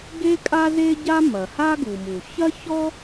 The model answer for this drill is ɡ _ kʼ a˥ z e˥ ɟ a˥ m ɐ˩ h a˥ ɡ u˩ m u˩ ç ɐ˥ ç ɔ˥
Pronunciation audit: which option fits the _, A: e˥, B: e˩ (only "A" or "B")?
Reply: A